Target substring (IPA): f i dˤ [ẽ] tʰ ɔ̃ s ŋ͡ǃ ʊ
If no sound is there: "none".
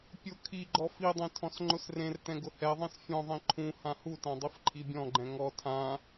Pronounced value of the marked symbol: ẽ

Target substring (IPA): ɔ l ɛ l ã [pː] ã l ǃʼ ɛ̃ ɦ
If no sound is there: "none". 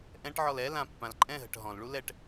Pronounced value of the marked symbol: pː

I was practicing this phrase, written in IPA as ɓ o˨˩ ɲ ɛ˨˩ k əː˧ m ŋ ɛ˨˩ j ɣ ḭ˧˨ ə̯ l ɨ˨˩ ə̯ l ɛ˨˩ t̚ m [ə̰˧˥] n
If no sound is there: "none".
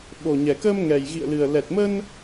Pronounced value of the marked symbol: ə˧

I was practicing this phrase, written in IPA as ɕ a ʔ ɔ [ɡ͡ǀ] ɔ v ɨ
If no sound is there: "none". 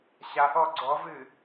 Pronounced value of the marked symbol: ɡ͡ǀ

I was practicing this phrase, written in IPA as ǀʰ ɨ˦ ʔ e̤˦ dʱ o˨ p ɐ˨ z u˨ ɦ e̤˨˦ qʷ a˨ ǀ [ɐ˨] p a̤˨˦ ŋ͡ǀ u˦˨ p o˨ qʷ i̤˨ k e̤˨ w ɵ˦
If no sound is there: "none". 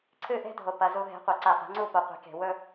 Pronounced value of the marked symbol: a˨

